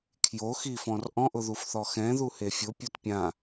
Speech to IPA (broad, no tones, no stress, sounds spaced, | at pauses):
kʰ j o x i f ɔ̃ r ʔ ɔ̃ ʔ ʊ ð u f θ ɔ x ɛ̃ ð u h e fʲ ʊ pʲ o t pʲ ã